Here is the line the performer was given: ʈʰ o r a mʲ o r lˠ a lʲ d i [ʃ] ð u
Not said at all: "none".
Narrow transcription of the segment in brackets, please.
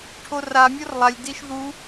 ʃ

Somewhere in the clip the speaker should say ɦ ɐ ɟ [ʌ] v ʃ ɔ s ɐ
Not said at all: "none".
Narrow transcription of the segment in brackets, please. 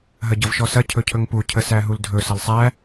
ʌ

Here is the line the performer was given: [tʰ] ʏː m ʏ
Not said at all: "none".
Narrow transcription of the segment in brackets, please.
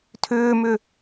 tʰ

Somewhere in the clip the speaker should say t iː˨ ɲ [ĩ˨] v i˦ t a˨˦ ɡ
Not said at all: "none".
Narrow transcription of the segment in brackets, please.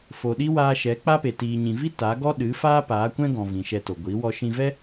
ĩ˨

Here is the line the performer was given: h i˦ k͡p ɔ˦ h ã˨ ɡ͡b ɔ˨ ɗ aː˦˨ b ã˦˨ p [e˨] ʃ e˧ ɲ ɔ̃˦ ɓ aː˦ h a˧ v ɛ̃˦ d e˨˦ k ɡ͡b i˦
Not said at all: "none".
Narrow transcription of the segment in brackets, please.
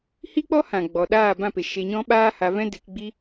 e˨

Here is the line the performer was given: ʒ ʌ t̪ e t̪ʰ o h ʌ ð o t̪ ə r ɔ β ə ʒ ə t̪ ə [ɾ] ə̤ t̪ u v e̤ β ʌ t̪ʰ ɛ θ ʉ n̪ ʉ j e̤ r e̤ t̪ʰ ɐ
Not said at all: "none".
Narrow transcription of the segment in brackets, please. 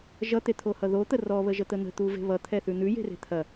n̪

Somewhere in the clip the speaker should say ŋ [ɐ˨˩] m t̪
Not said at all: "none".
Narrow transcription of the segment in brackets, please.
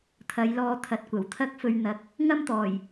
ɐ˥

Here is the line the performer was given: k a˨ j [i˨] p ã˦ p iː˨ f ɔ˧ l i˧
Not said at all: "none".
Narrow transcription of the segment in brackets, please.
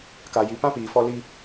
i˨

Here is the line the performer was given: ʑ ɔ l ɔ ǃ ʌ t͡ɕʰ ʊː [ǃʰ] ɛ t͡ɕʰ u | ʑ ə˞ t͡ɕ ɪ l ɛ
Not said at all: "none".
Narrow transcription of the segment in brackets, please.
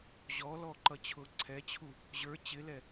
ǀʰ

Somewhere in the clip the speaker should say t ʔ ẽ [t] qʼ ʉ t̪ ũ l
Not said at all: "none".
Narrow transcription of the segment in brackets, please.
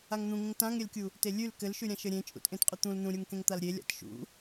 t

